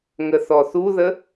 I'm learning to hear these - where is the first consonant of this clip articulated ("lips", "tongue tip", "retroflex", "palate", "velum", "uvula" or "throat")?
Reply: velum